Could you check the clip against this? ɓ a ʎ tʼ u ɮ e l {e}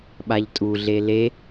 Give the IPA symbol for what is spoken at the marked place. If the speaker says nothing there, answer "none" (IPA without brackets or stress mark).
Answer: e